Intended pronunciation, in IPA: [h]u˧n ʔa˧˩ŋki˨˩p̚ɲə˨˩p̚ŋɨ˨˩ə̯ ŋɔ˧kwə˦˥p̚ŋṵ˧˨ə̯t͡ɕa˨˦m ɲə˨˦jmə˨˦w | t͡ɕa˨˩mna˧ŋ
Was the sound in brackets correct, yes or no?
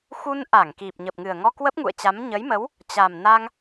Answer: no